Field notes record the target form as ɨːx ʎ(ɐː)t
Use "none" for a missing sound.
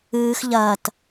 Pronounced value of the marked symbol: ɐː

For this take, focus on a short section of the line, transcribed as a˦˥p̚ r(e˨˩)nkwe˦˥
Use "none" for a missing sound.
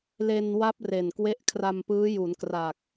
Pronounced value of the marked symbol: e˨˩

